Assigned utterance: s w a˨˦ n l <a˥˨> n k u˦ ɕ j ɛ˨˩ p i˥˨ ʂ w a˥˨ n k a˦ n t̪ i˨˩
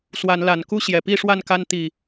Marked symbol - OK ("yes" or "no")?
no